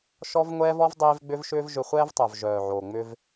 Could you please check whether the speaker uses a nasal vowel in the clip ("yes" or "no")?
no